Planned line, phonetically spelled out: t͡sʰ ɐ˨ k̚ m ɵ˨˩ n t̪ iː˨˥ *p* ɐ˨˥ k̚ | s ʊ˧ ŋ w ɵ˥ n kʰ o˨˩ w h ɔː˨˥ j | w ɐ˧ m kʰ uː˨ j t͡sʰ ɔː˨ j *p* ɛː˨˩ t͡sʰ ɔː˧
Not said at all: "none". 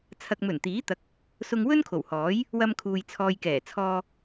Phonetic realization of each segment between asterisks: t̪, k

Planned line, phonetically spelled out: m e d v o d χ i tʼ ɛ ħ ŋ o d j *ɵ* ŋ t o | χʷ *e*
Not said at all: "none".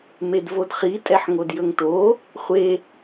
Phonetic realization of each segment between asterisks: ɵ, e

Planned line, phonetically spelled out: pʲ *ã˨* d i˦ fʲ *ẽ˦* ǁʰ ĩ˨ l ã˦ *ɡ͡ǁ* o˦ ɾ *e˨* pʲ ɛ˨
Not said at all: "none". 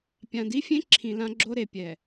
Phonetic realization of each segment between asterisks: ã˨, ẽ˦, ɡ͡ǁ, e˨

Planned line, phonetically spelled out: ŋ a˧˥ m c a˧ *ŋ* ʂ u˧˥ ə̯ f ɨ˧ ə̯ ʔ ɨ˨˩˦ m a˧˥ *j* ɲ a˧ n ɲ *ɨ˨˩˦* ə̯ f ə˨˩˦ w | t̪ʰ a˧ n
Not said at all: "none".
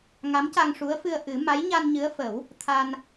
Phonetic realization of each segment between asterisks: ŋ, j, ɨ˧˥

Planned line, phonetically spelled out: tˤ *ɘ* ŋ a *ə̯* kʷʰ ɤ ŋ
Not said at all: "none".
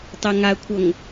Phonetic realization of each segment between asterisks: ɛ, ə̯

